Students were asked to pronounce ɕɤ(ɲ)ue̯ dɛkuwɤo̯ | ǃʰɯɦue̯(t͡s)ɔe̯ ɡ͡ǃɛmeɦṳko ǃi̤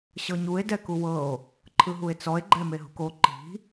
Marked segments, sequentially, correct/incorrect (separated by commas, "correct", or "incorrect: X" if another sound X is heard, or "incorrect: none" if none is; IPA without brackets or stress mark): correct, correct